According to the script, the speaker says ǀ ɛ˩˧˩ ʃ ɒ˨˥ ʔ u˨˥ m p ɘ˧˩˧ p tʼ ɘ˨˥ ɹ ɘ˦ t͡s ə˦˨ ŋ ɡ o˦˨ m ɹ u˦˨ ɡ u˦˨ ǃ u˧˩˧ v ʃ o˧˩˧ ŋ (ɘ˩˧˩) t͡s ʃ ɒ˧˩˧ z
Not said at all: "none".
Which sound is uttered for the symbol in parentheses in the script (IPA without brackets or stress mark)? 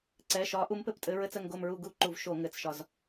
ɘ˩˧˩